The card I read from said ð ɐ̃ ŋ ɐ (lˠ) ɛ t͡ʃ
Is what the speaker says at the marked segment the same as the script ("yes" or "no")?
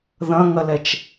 no